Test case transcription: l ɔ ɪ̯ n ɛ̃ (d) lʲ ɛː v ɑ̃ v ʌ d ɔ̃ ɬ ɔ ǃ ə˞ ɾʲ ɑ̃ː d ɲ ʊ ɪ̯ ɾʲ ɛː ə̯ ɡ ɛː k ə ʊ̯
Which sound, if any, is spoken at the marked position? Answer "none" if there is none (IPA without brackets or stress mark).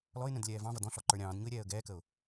d